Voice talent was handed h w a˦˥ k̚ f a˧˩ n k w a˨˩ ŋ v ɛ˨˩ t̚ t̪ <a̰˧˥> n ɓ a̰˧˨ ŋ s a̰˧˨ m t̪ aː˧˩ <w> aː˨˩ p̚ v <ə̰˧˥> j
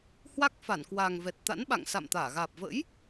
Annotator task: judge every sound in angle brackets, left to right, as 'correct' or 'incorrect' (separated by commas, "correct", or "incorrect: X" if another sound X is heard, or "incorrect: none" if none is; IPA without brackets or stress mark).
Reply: correct, incorrect: ɣ, correct